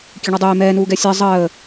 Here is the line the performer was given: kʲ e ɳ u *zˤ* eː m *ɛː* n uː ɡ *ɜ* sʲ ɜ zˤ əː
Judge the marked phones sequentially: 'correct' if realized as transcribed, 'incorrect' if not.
incorrect: dˤ, correct, incorrect: ɛ

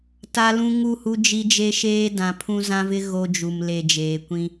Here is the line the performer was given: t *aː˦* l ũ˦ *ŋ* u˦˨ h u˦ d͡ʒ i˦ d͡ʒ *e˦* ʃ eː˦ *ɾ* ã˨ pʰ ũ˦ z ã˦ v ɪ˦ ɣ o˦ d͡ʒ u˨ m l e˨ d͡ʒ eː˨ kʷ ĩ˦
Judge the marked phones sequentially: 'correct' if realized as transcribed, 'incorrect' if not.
incorrect: a˦, correct, correct, incorrect: d

